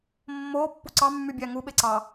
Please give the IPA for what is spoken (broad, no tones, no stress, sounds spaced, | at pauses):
mː oː pː u ǀ ɑ mː y bʲ æ ŋ u ɓ e ǀ ɑ